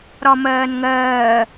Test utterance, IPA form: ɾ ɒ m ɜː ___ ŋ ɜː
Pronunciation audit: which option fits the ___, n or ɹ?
n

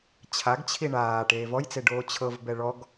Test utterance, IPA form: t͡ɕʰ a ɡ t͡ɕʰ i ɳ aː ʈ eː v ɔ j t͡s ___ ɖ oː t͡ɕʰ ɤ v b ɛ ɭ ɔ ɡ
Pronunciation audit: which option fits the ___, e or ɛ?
e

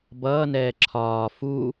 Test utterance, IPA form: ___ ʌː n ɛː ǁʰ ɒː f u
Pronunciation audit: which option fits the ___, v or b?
b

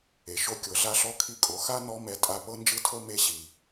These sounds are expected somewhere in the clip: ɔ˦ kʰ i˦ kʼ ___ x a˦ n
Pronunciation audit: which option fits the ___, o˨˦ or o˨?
o˨˦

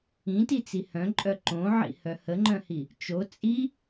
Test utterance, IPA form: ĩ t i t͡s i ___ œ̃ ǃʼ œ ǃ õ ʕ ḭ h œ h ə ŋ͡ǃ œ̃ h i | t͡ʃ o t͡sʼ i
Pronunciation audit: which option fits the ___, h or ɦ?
h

